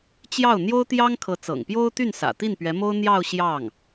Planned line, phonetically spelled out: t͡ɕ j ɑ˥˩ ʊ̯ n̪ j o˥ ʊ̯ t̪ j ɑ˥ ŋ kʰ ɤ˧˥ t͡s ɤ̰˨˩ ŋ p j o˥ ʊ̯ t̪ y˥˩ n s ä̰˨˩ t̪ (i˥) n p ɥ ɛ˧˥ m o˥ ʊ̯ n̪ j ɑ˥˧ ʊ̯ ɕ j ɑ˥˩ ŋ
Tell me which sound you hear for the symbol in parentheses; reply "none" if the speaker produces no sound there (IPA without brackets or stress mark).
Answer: i˥˩